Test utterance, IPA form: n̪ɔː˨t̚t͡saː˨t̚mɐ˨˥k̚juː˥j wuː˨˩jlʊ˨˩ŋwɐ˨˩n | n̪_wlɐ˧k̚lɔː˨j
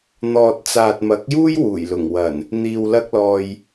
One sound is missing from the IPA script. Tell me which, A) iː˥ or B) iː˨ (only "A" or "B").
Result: B